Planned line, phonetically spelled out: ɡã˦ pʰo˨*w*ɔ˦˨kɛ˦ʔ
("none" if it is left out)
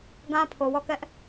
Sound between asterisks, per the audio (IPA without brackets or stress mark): w